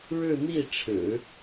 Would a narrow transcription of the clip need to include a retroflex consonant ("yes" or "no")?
yes